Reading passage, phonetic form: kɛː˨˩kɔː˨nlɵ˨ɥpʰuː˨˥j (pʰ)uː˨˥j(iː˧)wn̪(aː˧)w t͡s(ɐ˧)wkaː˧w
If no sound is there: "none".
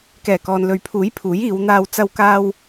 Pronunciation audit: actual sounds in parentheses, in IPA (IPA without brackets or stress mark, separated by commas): pʰ, iː˨˧, aː˧, ɐ˧